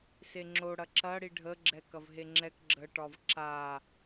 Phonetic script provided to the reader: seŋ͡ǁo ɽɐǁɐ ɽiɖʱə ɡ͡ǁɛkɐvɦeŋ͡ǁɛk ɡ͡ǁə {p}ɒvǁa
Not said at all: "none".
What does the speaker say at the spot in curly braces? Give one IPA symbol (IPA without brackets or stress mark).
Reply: ʈ